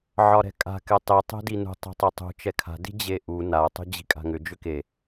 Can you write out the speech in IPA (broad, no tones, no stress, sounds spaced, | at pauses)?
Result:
ʕ ɒ ɾ ɛ̤ kʼ a̤ k ɛ tˤ i tˤ e̤ d i n ṳ tˤ i̤ tˤ ɵ tˤ ṳ t͡ʃ ɛ kʰ a̤ d i̤ d͡ʑ e ʔ u n a tˤ ṳ d͡ʑ i̤ kʼ a̤ ŋ ʏ d͡ʒ ʏ k e